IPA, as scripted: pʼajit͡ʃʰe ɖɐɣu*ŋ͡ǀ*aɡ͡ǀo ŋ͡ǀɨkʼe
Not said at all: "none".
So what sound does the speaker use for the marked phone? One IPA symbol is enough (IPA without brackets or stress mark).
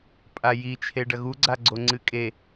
ɡ͡ǀ